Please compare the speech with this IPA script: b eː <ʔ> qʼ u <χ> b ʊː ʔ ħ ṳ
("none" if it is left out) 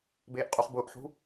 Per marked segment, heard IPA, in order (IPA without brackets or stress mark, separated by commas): ʔ, χ